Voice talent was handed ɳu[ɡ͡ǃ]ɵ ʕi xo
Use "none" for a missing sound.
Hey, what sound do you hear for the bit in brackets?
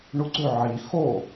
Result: ɡ͡ǀ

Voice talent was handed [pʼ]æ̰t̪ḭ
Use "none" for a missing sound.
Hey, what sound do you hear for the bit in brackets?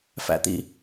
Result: f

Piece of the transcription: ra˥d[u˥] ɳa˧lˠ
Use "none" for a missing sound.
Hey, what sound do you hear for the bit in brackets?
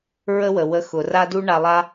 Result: u˥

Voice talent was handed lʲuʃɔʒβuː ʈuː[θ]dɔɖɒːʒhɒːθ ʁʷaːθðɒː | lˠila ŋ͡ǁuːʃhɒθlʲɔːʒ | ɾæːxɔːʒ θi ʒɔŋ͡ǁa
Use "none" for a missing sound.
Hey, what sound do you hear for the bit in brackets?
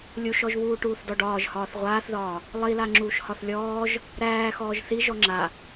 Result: θ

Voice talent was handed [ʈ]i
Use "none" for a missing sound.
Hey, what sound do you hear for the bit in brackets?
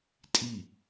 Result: tʼ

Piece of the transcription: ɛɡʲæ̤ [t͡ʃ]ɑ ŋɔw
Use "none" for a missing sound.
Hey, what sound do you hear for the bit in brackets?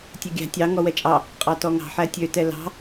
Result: tʲ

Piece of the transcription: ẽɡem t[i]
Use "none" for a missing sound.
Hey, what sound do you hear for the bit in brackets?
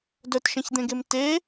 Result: e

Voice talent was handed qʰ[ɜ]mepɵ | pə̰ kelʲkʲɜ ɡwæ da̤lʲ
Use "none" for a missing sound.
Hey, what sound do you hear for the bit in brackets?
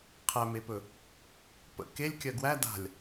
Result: æ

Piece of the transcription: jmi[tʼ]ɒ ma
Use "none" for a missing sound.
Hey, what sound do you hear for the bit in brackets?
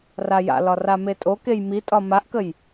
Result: tʼ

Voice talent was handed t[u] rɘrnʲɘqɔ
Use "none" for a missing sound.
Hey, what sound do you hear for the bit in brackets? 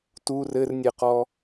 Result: u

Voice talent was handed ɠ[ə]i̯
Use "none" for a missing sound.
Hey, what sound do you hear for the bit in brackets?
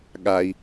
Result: a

